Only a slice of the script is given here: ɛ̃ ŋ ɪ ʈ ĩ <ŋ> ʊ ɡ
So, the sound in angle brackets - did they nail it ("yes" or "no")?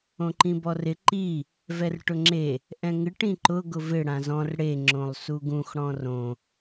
no